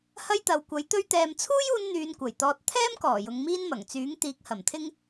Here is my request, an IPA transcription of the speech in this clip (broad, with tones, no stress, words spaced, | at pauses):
hɐ˥jt̪ɐ˨˧wkʷɐ˨˥jt̪ɵ˥ɥ t̪ɛː˨mt͡sʰuː˥juː˧n n̪yː˧nkʷɐ˨˩jt̪ɔː˧t̚ t̪ʰɛː˥mkɔː˨˩ jʊ˨˧ŋmiː˥n mɐ˨˩ŋt͡syː˨˥ŋ t̪iː˨˥k̚hɐ˨˩mt̪ʰɪ˥ŋ